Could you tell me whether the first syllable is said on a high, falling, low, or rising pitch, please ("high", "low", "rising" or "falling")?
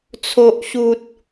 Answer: high